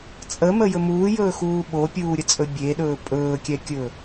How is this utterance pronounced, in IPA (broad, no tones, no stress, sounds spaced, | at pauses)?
t͡sʼ ə m ə j ɵ m uː j ɵː x uː ɓ o pʲ uː ɾʲ ə t͡sʼ ɵ bʲ e ɗ ɵː pʼ ɵː kʲ ɛ kʲ ɵ